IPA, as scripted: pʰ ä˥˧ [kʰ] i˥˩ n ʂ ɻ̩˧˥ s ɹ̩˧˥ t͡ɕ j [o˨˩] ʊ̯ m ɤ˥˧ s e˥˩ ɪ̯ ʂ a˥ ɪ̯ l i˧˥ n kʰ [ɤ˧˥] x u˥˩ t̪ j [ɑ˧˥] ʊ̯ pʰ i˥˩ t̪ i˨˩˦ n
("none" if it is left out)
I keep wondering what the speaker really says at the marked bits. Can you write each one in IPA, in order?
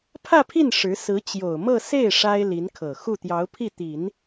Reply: pʰ, o˨˩, ɤ˨˩, ɑ˧˥

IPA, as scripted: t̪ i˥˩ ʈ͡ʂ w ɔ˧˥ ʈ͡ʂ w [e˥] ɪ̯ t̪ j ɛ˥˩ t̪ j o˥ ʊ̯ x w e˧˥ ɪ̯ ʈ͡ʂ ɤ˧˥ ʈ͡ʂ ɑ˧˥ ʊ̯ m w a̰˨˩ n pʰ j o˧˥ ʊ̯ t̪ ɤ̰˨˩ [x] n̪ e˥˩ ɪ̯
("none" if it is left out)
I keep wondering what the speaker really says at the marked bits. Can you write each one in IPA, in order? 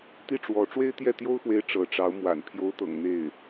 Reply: e˥, ŋ

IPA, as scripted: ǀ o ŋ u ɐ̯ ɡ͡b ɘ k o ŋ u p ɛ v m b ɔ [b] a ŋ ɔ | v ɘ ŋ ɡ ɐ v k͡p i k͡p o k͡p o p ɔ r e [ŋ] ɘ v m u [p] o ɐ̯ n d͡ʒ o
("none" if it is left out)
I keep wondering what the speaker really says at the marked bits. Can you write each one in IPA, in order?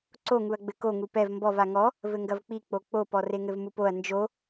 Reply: v, ŋ, p

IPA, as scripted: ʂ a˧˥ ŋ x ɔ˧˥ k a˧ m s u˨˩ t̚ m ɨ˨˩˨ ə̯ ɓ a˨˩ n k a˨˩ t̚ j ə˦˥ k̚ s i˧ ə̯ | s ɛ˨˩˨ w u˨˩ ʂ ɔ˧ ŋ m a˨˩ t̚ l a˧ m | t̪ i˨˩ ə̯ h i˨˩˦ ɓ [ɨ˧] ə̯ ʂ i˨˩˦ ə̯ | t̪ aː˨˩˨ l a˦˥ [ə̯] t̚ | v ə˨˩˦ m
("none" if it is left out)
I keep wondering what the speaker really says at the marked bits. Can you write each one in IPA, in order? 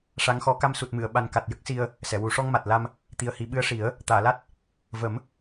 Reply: ɨ˧˥, none

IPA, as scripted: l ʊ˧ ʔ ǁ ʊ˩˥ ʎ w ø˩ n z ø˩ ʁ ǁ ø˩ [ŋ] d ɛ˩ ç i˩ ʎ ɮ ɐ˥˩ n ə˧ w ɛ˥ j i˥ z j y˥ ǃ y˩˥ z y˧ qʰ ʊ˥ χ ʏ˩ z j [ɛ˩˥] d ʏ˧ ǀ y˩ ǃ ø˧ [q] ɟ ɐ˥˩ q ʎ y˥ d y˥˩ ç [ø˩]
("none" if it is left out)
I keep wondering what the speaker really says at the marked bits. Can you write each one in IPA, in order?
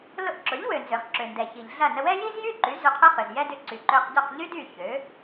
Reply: n, ɛ˥, q, ø˩˥

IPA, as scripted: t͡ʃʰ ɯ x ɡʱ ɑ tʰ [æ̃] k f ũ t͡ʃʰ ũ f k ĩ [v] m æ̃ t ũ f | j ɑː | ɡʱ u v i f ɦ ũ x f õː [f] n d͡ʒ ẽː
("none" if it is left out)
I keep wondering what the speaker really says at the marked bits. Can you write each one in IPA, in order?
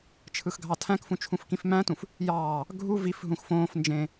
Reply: æ̃, f, f

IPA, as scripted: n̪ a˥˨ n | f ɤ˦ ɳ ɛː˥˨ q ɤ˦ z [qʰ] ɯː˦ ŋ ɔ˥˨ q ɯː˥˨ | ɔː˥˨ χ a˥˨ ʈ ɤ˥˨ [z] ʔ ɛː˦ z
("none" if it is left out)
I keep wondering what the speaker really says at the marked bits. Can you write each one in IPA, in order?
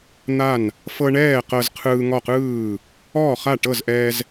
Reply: qʰ, z

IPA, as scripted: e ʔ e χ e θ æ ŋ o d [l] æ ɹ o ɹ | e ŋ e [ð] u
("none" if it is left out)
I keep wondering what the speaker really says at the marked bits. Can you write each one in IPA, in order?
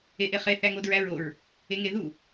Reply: ɹ, ð

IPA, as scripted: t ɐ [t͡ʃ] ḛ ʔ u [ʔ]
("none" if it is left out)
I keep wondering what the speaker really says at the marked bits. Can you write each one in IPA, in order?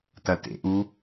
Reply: t, none

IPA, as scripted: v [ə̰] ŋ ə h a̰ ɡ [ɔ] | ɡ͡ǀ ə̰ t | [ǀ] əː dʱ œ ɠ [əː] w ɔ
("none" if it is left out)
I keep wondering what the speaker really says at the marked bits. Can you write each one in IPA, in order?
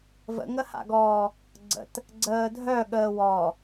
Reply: ə̰, ɔː, ɡ͡ǀ, əː

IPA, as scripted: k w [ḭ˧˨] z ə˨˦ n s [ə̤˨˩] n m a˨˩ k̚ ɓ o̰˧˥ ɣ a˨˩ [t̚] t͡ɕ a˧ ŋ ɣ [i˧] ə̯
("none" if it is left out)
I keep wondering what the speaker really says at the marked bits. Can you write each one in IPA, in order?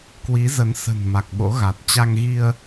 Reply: i˨˦, ə̤˨˩, t̚, i˧

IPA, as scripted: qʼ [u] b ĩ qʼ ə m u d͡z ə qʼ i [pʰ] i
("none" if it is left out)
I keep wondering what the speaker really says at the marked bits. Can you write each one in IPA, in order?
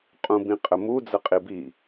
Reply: ũ, b

